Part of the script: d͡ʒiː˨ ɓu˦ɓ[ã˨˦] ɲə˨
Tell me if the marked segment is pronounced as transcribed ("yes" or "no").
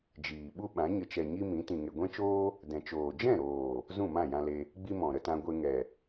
yes